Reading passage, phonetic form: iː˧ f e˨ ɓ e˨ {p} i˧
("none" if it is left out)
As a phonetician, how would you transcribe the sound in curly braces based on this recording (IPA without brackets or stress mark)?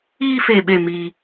m